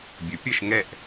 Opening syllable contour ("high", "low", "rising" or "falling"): rising